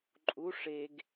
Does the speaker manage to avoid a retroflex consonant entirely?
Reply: no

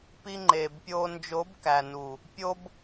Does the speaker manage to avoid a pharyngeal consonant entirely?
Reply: yes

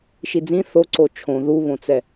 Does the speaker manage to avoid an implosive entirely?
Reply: yes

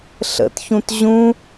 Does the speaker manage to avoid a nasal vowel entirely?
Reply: no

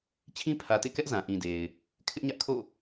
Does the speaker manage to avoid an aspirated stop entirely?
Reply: no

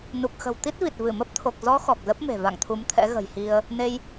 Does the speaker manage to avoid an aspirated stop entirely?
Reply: no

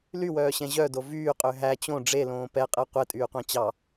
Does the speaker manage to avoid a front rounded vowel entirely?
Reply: no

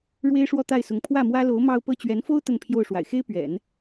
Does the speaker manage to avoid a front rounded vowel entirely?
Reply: yes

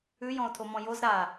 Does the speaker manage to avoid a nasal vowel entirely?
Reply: no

